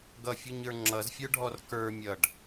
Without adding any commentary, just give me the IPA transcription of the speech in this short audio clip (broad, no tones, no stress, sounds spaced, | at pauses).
ɡ ʌ fʲ u ɲ ə˞ ŋ͡ǁ ʌ z fʲ ə˞ ɖʱ ɔ r k ə˞ mʲ ʌ ɖ